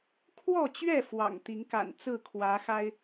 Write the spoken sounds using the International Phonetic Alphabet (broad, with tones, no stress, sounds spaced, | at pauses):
kʰ w ɔ˥˨ t͡ɕ ɥ ɛ˥˨ f w ɑ̰˨˩ ŋ t̪ i˨˦ ŋ k a̰˨˩ n t͡s ɹ̩˥˨ kʰ w ä˨˦ x a˦ ɪ̯